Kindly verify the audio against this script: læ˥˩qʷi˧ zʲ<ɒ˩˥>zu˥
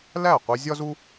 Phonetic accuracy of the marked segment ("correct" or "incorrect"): incorrect